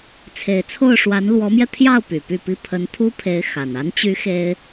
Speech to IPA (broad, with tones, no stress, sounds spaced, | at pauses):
t͡sʰ e˨˩ ɪ̯ t͡sʰ o˥˩ ʊ̯ ʂ w a˧˥ n l w ɔ˧˥ m j ɛ˧ t̪ʰ j ɑ˥˩ ʊ̯ p y˨˩ p y˥˧ p i˥˩ pʰ ə˧˥ n t̪ʰ u˥ pʰ e˧˥ ɪ̯ x a˨˩ n a˧˥ n t͡ɕ y˧˥ x e˥ ɪ̯